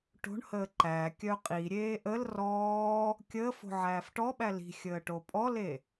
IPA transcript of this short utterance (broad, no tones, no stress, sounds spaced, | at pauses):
ʈ o̤ ɳ h əː ǃ æ kʲ œ qʼ i ɾʲ eː ʔ ə l r ɔː | kʲ əː f o̤ ʕ æː f ʈ ɔ ɓ æ l i̤ xʲ əː ʈ o pʼ ɔ l e